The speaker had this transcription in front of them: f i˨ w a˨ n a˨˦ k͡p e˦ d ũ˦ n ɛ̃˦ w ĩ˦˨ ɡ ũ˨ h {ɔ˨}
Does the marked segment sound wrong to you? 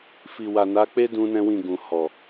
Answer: no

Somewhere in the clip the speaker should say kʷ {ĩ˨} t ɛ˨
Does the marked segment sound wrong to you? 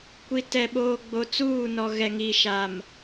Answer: yes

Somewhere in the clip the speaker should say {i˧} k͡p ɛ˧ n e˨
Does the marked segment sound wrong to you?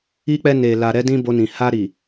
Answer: no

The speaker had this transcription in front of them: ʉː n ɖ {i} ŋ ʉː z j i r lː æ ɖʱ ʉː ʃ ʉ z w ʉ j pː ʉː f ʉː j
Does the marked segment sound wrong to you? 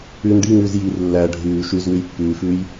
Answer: no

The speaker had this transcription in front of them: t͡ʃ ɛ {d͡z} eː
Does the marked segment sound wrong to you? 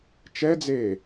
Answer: no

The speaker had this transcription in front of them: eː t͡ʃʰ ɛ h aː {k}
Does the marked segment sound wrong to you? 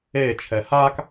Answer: no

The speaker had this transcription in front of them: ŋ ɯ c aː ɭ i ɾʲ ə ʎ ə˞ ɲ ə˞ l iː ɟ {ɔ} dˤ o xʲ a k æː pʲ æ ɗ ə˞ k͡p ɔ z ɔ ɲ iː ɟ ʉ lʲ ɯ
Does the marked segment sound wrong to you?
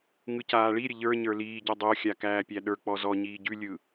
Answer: no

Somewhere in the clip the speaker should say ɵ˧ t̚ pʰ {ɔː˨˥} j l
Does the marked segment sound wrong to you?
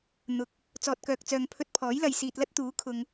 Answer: no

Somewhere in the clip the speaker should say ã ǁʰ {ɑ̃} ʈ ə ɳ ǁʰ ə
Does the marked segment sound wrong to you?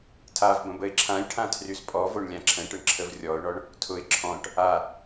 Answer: yes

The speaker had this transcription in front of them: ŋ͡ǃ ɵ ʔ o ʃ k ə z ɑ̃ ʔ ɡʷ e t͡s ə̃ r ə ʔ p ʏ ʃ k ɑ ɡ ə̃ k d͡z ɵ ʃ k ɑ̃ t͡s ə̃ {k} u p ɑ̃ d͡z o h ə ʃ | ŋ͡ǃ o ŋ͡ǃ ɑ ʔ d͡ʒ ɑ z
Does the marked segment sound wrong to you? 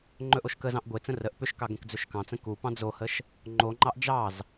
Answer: no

